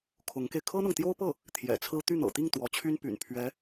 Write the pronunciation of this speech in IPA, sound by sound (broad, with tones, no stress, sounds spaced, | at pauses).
kʰ ʊ˧˥ ŋ k e˧ ɪ̯ kʰ ɤ˥ n̪ ɤ˨ ŋ t̪ j o˥ ʊ̯ p ɤ˥˩ | t̪ʰ j ɛ̰˨˩ t͡sʰ ɹ̩˥ t̪ y˥˩ n̪ ɤ̰˨˩ t̪ i˥˩ ŋ t̪ w ɔ˧˥ t͡ɕʰ y˥ n p y̰˨˩ n pʰ ɥ ɛ˧˥